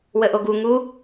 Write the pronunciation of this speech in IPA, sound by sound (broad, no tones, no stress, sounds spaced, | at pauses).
w ə ʔ o ɡ u ŋ u